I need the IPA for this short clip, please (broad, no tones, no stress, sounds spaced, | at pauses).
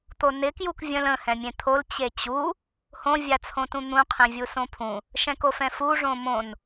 t̪ o n ɪ k j u k vʲ ə̃ l ə̃ h ɛ̃ mʲ ẽ t̪ʰ o l t͡ɕ e t͡ɕ u | h õ vʲ a t͡sʰ õ t ũ n̪ ũ qʰ ẽ vʲ u s õ pʰ ũ | ʃ ɛ̃ k o f ɛ̃ f u ʐ õ m õ n